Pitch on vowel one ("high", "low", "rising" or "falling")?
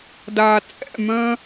low